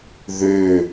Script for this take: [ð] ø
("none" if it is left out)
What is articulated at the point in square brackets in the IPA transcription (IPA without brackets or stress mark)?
ð